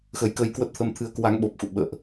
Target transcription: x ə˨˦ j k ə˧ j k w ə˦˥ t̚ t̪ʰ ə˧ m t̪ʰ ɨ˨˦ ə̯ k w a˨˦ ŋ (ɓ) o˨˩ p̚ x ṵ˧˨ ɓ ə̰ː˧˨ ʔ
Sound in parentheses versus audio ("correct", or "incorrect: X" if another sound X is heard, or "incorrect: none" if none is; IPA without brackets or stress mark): correct